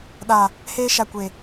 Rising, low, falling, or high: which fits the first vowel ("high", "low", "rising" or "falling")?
low